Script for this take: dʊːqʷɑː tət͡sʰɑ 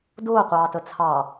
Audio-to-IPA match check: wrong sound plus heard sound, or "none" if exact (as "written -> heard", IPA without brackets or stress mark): none